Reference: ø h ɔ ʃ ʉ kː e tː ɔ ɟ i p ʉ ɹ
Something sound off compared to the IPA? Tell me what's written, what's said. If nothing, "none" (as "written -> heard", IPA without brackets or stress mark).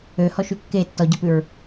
none